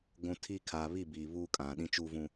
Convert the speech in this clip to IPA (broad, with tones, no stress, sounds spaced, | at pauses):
ɡʷ ũ˨ tʰ i˦ kʰ aː˨ β i˦˨ b iː˨ β uː˦ kʼ ã˨ ɗ ĩ˦ t͡ʃ uː˦ v ũ˦